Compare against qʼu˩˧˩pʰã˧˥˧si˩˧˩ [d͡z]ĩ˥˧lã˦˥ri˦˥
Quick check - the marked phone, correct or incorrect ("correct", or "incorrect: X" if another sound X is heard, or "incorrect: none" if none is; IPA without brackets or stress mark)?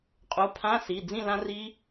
correct